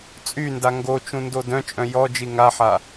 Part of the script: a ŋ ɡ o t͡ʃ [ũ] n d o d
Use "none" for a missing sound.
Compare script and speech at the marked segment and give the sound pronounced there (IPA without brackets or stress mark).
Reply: ũ